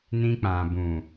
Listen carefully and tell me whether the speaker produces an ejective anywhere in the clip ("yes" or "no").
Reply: no